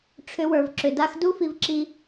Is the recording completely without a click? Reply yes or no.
no